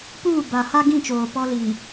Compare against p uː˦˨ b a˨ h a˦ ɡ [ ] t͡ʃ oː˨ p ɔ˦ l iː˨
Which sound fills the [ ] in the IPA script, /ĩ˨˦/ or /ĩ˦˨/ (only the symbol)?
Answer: ĩ˦˨